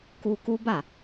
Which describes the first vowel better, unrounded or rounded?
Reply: rounded